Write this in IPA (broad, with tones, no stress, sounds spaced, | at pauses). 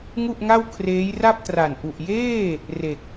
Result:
ŋ u˥˩ ʔ ŋ a˥˩ w kʰ r eː˦˥ j r a˥˩ p̚ t r a˨˩ n ʔ u˨˩ ʔ j eː˥˩ | r e˨˩ k̚